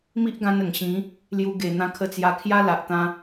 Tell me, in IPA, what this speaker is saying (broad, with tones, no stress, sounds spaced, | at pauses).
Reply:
m i˦ ʔ ɡ ã˧ n ə˨˩ ŋ ɕ ĩ˨˦ | l j u˧ ɡ e˨˩ n̪ ã˧ kʰ ə˧ t͡s j a˧ kʰ j a˦ l a˨ ʔ t̪ ã˧